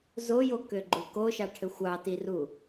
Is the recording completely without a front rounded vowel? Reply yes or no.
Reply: no